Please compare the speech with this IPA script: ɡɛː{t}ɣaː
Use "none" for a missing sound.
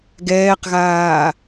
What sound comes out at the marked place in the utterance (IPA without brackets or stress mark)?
q